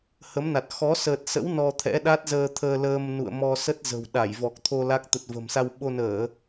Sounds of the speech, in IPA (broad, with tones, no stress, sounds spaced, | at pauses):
h ə˨˦ m n a˨˩ t̚ x ɔ˨˦ s əː˨˩ t̚ s ə̰˧˥ w n ɔ˧ t̪ʰ ɛ̰˧˥ ɗ a˦˥ t̚ z əː˧ t̪ʰ əː˧ l əː˧ m n ṵ˧˨ ə̯ m ɔ˧ s ə˦˥ t̚ z ə̤˨˩ w ɗ a˧˩ j v ɔ˨˩ k̚ t̪ʰ o˧ l a˦˥ k̚ t̪ ə˨˩ t̚ v ə̤˨˩ m s a˧ w ɓ o˧ n əː˧˩˨